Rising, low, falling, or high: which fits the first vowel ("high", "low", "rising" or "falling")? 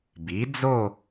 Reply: rising